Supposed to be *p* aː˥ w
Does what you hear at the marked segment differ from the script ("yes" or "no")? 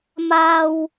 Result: yes